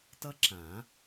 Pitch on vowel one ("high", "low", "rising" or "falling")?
high